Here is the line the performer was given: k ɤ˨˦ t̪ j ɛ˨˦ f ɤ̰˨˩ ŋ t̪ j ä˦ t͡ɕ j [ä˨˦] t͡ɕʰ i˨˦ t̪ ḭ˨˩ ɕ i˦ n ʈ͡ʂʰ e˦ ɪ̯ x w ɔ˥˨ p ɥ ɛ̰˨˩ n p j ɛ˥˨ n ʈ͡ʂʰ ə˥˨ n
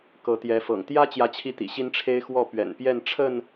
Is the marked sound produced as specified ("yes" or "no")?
yes